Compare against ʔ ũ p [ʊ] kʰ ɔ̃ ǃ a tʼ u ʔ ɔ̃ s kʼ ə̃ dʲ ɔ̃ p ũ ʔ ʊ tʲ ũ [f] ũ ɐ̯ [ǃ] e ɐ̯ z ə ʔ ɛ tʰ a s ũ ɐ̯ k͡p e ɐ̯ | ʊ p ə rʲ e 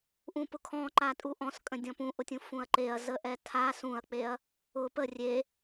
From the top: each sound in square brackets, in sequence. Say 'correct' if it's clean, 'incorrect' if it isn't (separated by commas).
correct, correct, correct